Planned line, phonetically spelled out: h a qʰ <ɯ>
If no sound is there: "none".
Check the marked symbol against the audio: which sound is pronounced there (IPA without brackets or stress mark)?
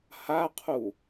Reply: u